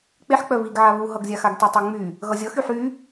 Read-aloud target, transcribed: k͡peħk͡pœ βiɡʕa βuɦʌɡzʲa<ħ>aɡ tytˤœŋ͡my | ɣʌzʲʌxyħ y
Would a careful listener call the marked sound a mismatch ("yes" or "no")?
yes